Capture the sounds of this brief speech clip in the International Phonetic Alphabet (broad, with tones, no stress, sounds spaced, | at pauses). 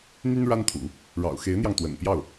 n̪ y˥ n ɻ a˥ n t̪ʰ ṵ˨˩˦ | ɻ ɑ̰˨˩ ʊ̯ x e˧˥ ɪ̯ n̪ j ɑ˧ ŋ t̪ w ə̰˨˩ n p j ɑ˥˩ ʊ̯